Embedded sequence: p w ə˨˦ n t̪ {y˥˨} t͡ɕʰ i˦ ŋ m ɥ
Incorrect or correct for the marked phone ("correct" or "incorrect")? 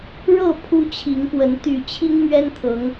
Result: incorrect